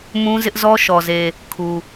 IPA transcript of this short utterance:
m ũ˦ z ɪ˦ ʔ z ɔ˦ ʃ ɔ˨ z e˨ | kʰ u˨

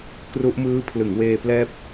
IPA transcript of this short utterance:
k r u˦˥ ʔ m ɯː˦˥ pʰ l ɯ˩˦ ŋ w eː˧ p l ɛː˦˥ p̚

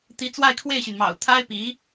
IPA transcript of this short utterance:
t̪ i˧˥ t͡s w a˥˧ ɪ̯ kʰ w e˥˩ ɪ̯ ɕ y˩ n m ɑ̰˨˩ ʊ̯ t̪ʰ a˥ ɪ̯ p i˧˥

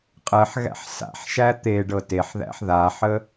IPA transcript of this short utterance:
qʼ ɜ ħ ɣ æ̰ ħ s a̰ ħ ʃ æ t̪ e ɖ ɤ t e ħ ð æ̰ ħ ð a ħ ə

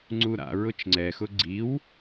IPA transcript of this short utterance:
ŋ͡ǀ u ɾ a̰ ɹ ʊ t͡ʃ ŋ͡ǀ ɛ x ʊ ɡ͡ǀ i w

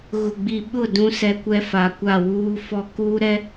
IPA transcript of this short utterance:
ɣ ʊ˨ ɡ͡b i˨ ɓ ʊ˦˨ d ũ˦ s ɛ˦ kʷ ɛ˦ f a˨ kʷ a˦˨ w uː˦ f ɔ˦ k uː˦ ɾ ɛ˦

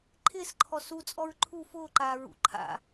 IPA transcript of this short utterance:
ǃʰ ɪː s ǃʰ ɔ s u t͡sʼ ɔ ɹ ǃʰ u f ʊː ǃ aː ɹ ṵ ǃʰ a̰

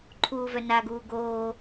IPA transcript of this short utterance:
ǃʰ uː v œ n a ɡ uː ɡ oː

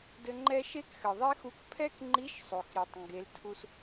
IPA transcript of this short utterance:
d ɘ˧ ŋ͡ǃ ɛ˥ ʃ e˥ k x ɘ˩ ðˤ e˥ x u˧ k pʰ ɛ˥ k ŋ͡ǃ i˧˥ ʃ sˤ o˩ x ɾ i˩ tˤ ŋ ɡ e˩˧ l tʰ u˧ s

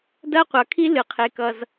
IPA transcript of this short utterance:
d ɐ˥ qʷ ʌ˩ kʰ i˥ l ɨ˩ qʰ e˩ k ʌ˩ z

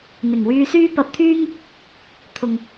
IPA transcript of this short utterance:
n̪ ɪ˨˩ ŋ w yː˧ s yː˥ p ɐ˧ p̚ t̪ʰ yː˥ ŋ | t̪ʰ ʊ˨ ŋ

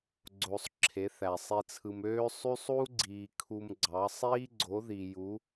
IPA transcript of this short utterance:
ɡ͡ǀ o˨ sˤ ǁʰ e˨˦ θ æ˨ sˤ i˧ t͡sʰ ɯ˧ m øː˦ sˤ y˦ sˤ u˦ ɡ͡ǀ iː˨ kʰ u˧ m ɡ͡ǀ ɑ˨˦ sˤ iː˦ ɡ͡ǀ o˨˦ ð i˨ j u˨˦

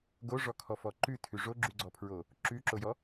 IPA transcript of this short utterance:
ɡ o ʐ ɔ kʰ ɔ f ɔ ǃ ʉ tʰ ʉ ʐ o ɡ͡ǁ ʉ ɡ͡ǀ ɔ pʰ ɹ o | ǁ ʉ ǁ o j ɔ

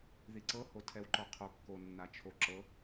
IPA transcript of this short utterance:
ð i ǀ ɤ h o tʰ ɛ w ǃ ɔ qʰ o kː o nː a t͡ʃʰ o ǁ ɤ

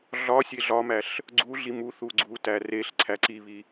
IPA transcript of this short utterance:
ɮ ɒ sʲ e ɮ ɒ m æ ɬ | ɡ͡ǀ u ɮ i m u θ u ɡ͡ǀ u t æ r e ɬ ǀʰ æ ǀ i β i

